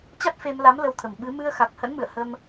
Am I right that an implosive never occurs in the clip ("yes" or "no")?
no